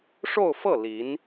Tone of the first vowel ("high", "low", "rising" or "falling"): falling